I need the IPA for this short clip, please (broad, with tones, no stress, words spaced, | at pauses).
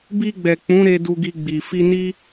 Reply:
bi˧ɡ͡bɛ˨ k͡pũ˨˦ɾe˧ du˧ɡi˧ɡ͡bi˨ fi˧ni˦